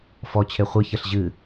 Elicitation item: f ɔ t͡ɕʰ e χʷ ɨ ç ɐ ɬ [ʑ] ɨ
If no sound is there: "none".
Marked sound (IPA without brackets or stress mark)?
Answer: ʑ